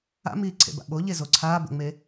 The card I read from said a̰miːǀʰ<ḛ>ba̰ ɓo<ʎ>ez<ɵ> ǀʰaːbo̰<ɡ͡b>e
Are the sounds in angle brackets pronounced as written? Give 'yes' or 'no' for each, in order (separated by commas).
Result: yes, yes, no, no